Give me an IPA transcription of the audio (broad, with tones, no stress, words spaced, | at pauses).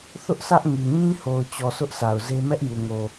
θʊ˦ʔ sʰä˦ʔŋi˨ ɲĩ˦ho˨ʊ̯t͡ɕɔ˨ sʊ˦ʔsa˨ʊ̯ze˦ mɛ˦ʔju˨ŋo˨